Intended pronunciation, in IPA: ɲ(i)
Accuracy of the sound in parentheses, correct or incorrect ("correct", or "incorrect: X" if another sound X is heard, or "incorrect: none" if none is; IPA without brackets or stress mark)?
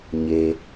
incorrect: e